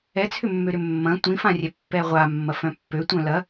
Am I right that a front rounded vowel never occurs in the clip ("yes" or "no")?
no